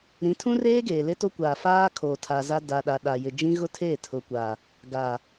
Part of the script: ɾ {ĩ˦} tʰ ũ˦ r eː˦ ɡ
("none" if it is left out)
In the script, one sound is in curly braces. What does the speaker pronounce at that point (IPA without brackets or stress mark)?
ĩ˨˦